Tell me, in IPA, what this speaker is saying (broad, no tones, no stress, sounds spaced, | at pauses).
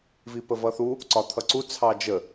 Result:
v i p ə v ʌ θ u | ǀ ɒ t̪ʰ ʌ ǀ u t͡sʰ ɑ d͡ʒ ə